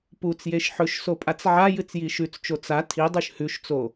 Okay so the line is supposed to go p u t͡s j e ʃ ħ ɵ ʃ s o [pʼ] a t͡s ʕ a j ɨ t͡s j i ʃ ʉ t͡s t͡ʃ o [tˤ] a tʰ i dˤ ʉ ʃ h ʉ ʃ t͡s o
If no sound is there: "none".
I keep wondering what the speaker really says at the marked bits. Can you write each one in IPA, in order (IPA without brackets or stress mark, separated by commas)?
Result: pʼ, t͡s